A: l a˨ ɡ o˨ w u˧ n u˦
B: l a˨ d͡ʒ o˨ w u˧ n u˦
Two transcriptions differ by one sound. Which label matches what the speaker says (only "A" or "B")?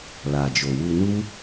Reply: B